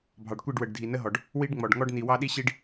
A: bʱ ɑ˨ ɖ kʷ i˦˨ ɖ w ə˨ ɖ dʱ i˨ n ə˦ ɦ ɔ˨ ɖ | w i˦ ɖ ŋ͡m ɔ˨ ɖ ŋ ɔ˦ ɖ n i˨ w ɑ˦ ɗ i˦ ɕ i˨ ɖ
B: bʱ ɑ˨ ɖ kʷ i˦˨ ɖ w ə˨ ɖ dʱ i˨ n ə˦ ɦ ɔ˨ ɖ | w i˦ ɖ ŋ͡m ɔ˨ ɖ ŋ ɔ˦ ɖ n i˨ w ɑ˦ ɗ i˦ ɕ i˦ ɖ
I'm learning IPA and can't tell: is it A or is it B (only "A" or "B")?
B